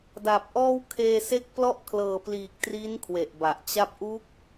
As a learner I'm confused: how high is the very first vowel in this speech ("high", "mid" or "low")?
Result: low